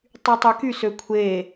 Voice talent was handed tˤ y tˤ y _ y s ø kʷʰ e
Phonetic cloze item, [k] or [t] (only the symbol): k